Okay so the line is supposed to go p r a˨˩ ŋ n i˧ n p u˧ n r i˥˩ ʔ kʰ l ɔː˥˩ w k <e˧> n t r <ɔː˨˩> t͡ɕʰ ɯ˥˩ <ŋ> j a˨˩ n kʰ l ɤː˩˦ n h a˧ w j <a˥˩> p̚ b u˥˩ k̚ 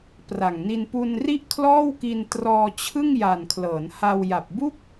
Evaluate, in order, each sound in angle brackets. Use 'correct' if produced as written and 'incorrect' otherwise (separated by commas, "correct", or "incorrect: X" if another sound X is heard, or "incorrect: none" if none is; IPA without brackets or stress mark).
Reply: incorrect: i˧, incorrect: ɔː˧, correct, incorrect: a˨˩